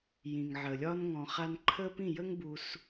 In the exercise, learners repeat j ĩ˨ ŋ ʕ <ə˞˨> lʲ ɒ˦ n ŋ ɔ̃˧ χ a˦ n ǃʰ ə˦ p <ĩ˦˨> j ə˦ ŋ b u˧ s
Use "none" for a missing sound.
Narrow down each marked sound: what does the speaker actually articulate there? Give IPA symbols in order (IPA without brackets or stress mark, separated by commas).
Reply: ə˨, ĩ˦˨